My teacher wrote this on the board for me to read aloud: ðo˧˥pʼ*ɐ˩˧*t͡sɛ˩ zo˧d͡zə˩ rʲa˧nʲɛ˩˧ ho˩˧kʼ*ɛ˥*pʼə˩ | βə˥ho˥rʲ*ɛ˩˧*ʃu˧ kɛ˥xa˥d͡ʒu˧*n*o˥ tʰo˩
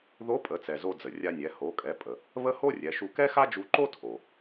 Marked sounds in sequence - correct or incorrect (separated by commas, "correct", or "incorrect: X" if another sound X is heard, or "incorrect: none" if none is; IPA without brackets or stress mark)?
incorrect: ə˩˧, incorrect: ɛ˩˧, correct, incorrect: ǃ